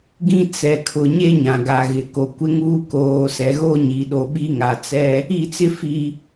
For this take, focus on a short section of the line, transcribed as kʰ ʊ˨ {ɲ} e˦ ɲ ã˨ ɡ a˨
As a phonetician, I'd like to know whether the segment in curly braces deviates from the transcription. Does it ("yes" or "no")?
no